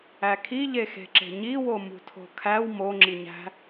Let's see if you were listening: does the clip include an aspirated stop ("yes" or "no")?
yes